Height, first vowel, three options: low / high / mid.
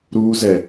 high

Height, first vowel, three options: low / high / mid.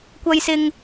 low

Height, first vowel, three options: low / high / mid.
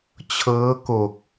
mid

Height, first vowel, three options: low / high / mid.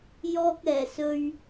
mid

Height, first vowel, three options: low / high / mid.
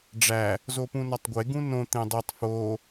low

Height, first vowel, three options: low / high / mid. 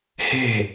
mid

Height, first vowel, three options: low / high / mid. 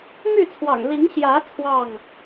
high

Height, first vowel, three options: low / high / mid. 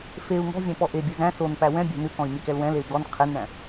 mid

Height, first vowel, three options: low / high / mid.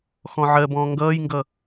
mid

